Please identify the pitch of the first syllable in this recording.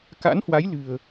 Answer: rising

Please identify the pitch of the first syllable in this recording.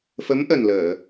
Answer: rising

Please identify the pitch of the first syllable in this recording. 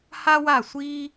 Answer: high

